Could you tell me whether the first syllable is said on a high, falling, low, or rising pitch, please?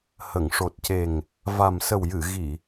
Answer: low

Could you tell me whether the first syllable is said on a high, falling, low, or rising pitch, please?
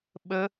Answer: high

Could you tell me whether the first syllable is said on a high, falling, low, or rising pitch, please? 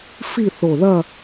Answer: falling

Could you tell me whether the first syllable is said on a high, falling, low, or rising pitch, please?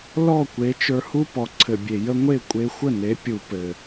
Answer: falling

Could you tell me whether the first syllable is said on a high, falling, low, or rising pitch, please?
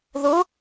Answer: rising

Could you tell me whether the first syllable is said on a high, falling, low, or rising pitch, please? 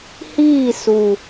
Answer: falling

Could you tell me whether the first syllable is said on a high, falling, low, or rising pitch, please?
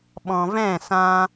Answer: low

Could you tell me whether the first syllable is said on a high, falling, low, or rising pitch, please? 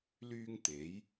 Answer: high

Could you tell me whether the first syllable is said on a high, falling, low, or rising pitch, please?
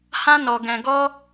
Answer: high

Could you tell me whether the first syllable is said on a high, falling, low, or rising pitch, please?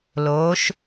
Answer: rising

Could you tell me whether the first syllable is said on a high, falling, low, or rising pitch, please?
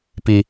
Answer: high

